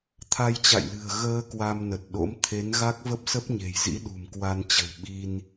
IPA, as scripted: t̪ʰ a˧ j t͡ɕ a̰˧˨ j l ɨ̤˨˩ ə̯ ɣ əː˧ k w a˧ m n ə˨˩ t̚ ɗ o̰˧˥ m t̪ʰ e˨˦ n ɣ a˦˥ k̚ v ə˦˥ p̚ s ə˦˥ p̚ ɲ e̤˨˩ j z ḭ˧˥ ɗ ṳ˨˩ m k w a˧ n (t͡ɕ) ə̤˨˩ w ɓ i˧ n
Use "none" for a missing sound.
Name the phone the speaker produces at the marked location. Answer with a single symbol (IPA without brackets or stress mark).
t͡ɕ